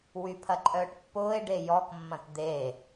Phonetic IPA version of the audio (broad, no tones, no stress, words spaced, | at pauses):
wypʰɐǃʼœːʈpːʊːe̯ ɖejɔkmːɐ̃t d̪e